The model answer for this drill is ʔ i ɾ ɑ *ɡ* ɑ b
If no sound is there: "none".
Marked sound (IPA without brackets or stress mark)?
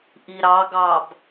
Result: ɡ